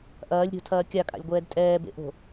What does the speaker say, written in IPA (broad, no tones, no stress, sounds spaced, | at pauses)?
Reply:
ʔ ɐː lʲ ɾʲ o̤ tʰ ɐː kʲ a kʼ a̰ lʲ ɡʷ ɛː d tʼ ɛː b ḛ ʔ o̤